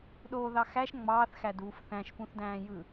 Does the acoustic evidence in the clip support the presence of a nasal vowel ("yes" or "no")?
yes